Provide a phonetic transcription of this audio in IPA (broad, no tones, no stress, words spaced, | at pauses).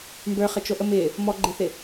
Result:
mbə˞χət͡ʃoʔə mɪ | mɔɡ͡ǃɪθɪ